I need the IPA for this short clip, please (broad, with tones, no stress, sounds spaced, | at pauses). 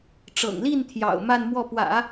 ʈ͡ʂ ɤ̰˨˩ ŋ l i˥˩ n t̪ʰ j ɑ̰˨˩ ʊ̯ m a˥˧ n m w ɔ˥˩ p w ä̰˨˩˦